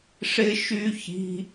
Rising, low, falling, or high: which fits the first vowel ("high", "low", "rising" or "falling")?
high